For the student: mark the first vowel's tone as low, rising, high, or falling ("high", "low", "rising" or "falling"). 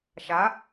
rising